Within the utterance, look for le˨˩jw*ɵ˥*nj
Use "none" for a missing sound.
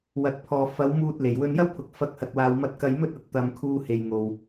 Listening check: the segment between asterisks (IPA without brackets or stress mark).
ɵ˧